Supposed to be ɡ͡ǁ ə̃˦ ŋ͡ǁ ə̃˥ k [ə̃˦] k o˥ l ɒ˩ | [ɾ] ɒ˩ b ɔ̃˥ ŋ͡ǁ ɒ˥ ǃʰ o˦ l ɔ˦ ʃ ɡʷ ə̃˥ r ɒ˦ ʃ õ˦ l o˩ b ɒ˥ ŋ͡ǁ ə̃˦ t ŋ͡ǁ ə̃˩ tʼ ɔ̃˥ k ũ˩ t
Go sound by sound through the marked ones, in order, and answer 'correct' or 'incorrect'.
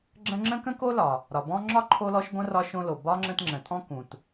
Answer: incorrect, correct

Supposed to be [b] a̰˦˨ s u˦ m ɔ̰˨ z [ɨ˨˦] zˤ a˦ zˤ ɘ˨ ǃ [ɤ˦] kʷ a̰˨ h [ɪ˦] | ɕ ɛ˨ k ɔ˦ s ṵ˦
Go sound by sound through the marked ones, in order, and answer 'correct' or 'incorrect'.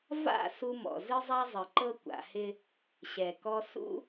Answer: incorrect, incorrect, correct, correct

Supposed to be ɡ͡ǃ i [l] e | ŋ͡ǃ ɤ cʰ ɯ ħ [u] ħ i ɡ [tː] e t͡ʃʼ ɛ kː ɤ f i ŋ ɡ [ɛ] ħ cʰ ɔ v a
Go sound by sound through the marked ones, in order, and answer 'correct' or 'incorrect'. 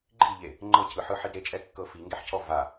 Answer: incorrect, incorrect, incorrect, correct

